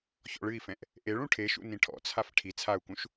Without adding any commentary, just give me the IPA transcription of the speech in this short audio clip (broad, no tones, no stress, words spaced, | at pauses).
çɔ̰ɭɨi̯fɛ̃ʔ | ʔeɭ ũʈʰeʃṵ nĩʈʰɔ̰t͡sʰaf ʈʰi t͡sʰau̯kũʃ